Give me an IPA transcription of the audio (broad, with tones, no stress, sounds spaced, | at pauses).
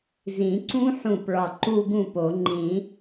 z ĩ˨˩˦ ǀ ũ˦˥ ħ ũ˧˩ p ɭ ɒ˧˩ ǃ u˥˧ ɡ ũ˥˩ p o˨˩˦ ŋ͡ǃ ĩ˨˩˦